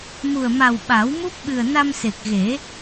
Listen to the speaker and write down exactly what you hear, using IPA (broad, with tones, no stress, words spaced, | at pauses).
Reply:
mu˨˩ə̯ma˨˩w ɓa˨˩˦wmu˦˥p̚ɓɨ˨˩ə̯ na˧mse˨˩k̚ɣe˨˩˦